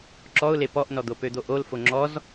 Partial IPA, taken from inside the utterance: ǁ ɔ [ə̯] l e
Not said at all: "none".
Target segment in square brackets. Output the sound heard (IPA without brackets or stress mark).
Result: ʊ̯